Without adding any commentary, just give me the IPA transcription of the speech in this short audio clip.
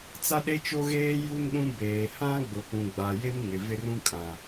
t͡s a˦ ɗ e˦ t͡ʃ o˦ ɣ eː˦ j u˦ n ɗ ũ˦ b eː˨ h ã˦ ɡ͡b ʊ˨ p ũ˨ ɡ͡b a˨ j e˦ m ŋ ɪ˨ v ɪ˦ r ũ˦ kʼ ã˨

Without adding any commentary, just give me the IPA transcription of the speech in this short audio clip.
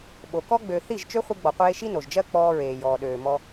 ɓ o˨ k ɔ˧ ɡ͡b ø˨ θ i˦˨ ʒ t͡ʃ ø˦ χʷ i˧ ɡ͡b ɔ˨ qʷ eː˧ ʃ i˦ n o˨ ʒ d͡ʒ ɜ˦ k͡p ɔː˧ ɹ eː˨ j ɔː˨ ɗ øː˨ m ɔ˧

